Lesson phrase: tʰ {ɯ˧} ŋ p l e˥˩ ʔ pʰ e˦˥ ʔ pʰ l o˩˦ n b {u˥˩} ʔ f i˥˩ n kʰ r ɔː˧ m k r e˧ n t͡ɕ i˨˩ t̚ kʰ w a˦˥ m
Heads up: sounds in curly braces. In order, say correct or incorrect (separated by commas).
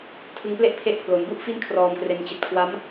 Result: correct, correct